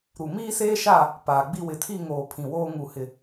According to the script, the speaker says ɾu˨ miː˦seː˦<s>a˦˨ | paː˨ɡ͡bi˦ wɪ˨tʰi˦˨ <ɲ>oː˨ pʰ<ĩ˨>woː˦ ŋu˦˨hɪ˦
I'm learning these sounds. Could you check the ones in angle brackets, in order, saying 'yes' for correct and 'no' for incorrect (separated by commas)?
no, no, yes